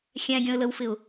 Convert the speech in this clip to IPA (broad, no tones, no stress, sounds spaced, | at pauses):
xʲ æ̃ ɡʲ ɔ̃ ə̯ l ə w f ɪ ʊ̯